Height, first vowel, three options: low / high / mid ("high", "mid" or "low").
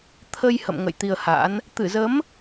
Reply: mid